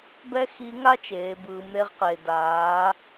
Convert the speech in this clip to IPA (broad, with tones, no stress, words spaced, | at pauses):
bɛ˥xi˧˥ŋa˥ t͡ʃeː˩˧bɯː˩˧mɾe˧ʁqeː˩ daː˩˧